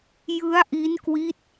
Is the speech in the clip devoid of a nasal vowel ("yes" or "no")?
yes